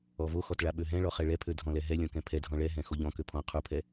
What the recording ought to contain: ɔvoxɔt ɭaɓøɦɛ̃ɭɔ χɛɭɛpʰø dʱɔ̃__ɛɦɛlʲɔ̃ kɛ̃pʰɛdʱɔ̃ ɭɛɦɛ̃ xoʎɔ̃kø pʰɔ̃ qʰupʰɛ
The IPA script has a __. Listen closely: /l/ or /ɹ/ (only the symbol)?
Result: l